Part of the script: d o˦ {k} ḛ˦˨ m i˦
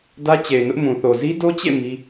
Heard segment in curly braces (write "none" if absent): t͡ɕ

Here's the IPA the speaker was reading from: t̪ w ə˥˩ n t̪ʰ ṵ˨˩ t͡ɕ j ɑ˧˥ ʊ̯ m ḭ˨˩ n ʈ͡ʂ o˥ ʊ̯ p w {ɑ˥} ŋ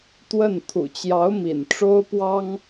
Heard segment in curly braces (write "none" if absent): ɑ˥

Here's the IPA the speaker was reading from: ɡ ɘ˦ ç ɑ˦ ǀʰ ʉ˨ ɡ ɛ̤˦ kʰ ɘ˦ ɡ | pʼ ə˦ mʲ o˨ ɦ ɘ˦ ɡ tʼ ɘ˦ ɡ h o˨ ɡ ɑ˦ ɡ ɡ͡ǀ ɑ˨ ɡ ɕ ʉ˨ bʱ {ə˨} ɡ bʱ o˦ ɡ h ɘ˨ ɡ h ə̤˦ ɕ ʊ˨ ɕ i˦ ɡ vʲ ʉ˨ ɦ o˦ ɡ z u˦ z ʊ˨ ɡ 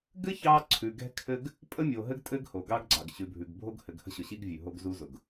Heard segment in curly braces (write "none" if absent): ʉ˨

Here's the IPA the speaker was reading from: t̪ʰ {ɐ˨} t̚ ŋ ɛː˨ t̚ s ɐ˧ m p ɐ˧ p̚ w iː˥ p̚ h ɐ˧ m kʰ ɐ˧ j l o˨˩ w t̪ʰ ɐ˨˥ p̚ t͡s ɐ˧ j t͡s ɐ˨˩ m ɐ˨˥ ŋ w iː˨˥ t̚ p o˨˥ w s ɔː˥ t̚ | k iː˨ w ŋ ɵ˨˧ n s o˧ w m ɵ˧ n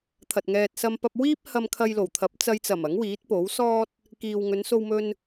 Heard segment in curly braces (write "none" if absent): ɐ˨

